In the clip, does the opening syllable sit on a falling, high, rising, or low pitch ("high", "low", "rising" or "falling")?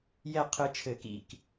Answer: falling